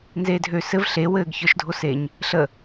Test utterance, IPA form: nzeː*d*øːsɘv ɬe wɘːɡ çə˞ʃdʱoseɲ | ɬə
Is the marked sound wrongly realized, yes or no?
yes